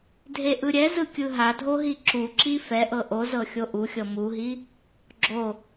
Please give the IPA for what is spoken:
dʱ e ʔ ɯ ɾʲ ɛ z ɯ kʲ ɯ ɦ a dʱ o ɦ i ǁ u ǁ i f ɛ ʔ ɤ ʔ o z ɤ xʲ o ʔ u xʲ ɤ m u ɦ i | ɡ͡ǁ o

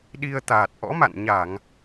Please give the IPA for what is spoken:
ɗ i˧ ə̯ t̪ aː˨˩ t̚ ʔ ɔ̰˧˥ m a̰˧˨ n ɲ a˧˩˨ ŋ

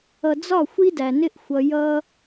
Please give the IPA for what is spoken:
ʌ˨ d͡z ɒ˦˨ xʷ i˦ d æ˨ n ɪ˦ ʔ xʷ ʌ˧ j ʌ˦

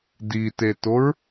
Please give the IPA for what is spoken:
d i t e t o ɹ

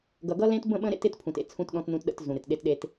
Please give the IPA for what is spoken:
ɡ ʌ˨ ɡ ʌ˦ l ẽ˦ t b ə̃˦˨ ɓ ə̃˦ ɾ ḛ˦ t ɪ˦ t pʰ ũ˨ t ḛ˨ t͡sʰ ũ˦ t ɗ ɔ̃˦ t n ũ˦ t ɗ ə̰˦ t z ũ˨ ɾ ɪ˨ t ɗ e˦ t ɗ e˦ t

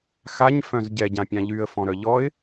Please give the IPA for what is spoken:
x a ɲ f œ̃ z ɟ ɛ ɟ ã pʲ ã ʎ y ə̯ f ɔ̃ ɾ œ ʎ ɔ ɪ̯

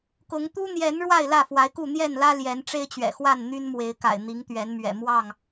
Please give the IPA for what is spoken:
k ʊ˨˦ ŋ t̪ u˦ n̪ j ɛ˨˦ n ɻ w a˥˨ ɪ̯ l ä˥˨ f w a˨˦ ɪ̯ k u˥˨ n̪ j ɛ˥˨ n l ä˦ l j ɛ˨˦ n ʈ͡ʂ e˦ ɪ̯ t͡ɕ ɥ ɛ̰˨˩ x w a˥˨ n n̪ y˦ n m w e˨˦ ɪ̯ k a̰˨˩ ɪ̯ n̪ i˨˦ ŋ t̪ ɥ ɛ˨˦ n m ɥ ɛ̰˨˩ m w ɑ˥˨ ŋ

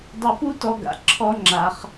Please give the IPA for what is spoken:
dˤ ɵ˧ p u˥ t ɔ˧ ɡ a̰˩ ǁʰ ɔ˥ ŋ͡ǁ a˧ χ

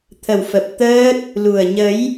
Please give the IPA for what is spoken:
t̪ʰ ə˨˩ w f ə˨˩ p̚ t̪ əː˦˥ t̚ | l u˨˩ ə̯ ɲ ə˨˦ j

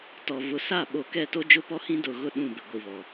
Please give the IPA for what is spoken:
t ɔ˨ v ʊ˨˦ s a˦˨ ɓ o˨ k ɛ˦˨ t o˦ d͡ʒ ʊ˦ p ɔ˦ h ĩ˦ d ʊ˨ ɣ ʊ˦˨ ɗ ũ˦˨ b ɪ˨ ɡʷ i˨ β ɔ˨

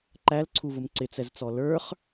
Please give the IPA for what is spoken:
ǃ æ l ǀʰ u v ʊ m ǀ ɪ t͡s ɛ z t͡s ɔ l ə˞ χ

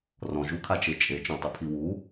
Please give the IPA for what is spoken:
r ɔ̃ ʒ u kʰ a t͡ʃ e t͡ʃʼ e t͡ʃ õ tˤ u pʰ i w u

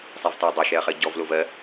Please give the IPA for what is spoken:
sˤ ɛ v t ɔ ɐ̯ dˤ ɜ ʃ ɛ ɐ̯ χ ɜ ɟ ɔ v l o v ɜ

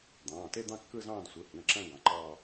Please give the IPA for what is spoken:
d̪ ɑ̃ː˩˧˩ t e˥˧ d̪ ɑ̃˥˧ kː ɯ˥˧ z ɑ̃ː˥˧ d sʷ ɯ˩˧˩ h ĩ˩˧˩ ɐ̯ ǁ æ̃˥˧ ɡ ɑ̃˩˧˩ ǃ ɑː˥˧

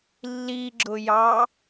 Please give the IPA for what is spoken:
lː i ɡ͡ǁ ʊ j ɑ

